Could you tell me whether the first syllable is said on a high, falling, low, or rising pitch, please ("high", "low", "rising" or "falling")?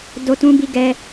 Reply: high